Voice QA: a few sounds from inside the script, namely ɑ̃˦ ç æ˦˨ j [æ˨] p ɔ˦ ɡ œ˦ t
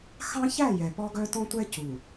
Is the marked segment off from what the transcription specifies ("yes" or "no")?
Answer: yes